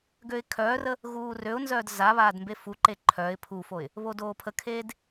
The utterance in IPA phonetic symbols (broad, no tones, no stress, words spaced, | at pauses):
ɡøɪ̯kʰœːrə | ɣuːrøʊ̯nzœːd za βaːdmbefuǃe ǃʰœɪ̯ pʰufoɪ̯ | βodoːpʰəkʰeːd